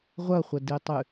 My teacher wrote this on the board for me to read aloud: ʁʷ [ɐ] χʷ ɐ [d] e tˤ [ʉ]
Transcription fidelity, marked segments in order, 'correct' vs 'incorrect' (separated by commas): correct, correct, correct